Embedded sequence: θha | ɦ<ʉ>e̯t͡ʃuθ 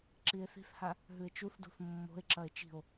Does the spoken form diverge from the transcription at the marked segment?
no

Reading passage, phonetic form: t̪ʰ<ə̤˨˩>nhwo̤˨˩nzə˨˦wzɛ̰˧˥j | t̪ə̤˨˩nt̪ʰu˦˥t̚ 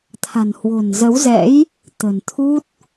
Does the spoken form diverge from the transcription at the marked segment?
yes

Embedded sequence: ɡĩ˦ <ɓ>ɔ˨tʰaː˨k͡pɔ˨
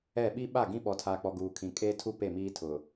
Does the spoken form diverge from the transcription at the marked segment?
no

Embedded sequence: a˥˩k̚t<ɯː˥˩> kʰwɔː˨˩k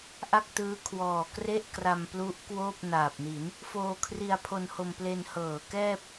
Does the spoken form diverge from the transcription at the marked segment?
yes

